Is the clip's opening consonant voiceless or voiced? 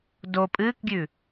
voiced